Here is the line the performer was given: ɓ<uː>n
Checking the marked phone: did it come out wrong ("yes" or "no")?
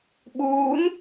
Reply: no